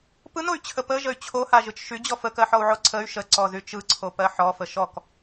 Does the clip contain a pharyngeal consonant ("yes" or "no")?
yes